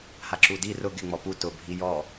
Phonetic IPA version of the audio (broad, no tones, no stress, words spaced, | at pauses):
haǁudi rʊ ɡɪ ŋ͡mɔpu tʊ bʱijɔ